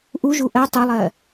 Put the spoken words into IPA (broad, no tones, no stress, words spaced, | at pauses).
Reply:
ʔuʒu ʔɜ tˤɵlˠɜ